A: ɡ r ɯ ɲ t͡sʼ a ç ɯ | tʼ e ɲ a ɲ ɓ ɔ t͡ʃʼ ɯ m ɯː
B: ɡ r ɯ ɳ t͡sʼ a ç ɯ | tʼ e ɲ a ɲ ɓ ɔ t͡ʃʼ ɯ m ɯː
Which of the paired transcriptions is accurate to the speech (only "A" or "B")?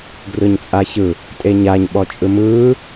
A